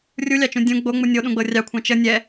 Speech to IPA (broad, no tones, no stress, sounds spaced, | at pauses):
rʲ u lʲ ɑ t͡ʃ ũ dʲ ũ ɡ͡b o ŋ͡m u nʲ o ɗ ũ ɡ͡b ɤ rʲ ɑ kʷʰ ɑ̃ t͡ʃ ə nʲ ɛ